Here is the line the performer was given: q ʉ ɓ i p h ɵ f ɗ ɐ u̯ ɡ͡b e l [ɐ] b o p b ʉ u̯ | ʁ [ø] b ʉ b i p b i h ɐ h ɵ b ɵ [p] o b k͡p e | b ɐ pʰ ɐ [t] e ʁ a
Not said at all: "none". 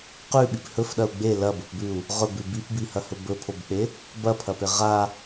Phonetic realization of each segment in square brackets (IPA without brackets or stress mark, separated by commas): ɐ, ɵ, pʰ, p